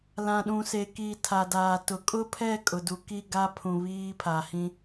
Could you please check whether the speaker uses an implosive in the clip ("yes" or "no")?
yes